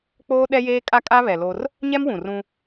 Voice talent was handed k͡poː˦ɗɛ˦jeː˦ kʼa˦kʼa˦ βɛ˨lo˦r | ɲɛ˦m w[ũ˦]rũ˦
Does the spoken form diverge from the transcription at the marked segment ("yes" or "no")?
yes